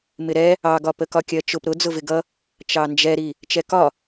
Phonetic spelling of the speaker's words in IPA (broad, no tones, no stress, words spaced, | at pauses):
mɪɾɛ | ɑɡɒ pəkɒkʲɜt͡ʃʊp ɾʊ d͡zʊvɪɡʌ | t͡ʃɑnd͡ʒɛɾi | t͡ʃɛkɒ